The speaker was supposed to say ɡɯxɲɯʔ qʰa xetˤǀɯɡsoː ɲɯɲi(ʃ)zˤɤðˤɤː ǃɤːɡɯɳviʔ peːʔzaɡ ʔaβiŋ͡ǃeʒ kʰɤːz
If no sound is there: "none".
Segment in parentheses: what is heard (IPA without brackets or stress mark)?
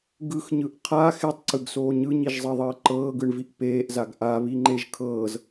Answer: ʒ